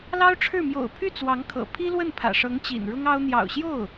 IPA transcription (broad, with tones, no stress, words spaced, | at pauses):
lɑ˥ʊ̯ʈ͡ʂʰɻ̩˥˩ mjo̰˨˩ʊ̯pʰy˥˩ t͡swɑ˧˥ŋkʰɤ̰˨˩ pʰi˥lwə˥˩npʰä̰˨˩ʂɤ˧˥ŋ t͡ɕḭ˨˩nɻʊ˥ŋɑ˥ʊ̯ n̪jɑ̰˨˩ʊ̯ɕjo˥˩ʊ̯